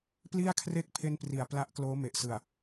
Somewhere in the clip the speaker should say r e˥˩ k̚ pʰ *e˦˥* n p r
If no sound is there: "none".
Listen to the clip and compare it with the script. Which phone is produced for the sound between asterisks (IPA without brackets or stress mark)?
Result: e˥˩